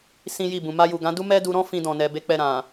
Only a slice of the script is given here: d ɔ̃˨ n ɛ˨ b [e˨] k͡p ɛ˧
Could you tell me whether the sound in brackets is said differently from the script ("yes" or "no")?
yes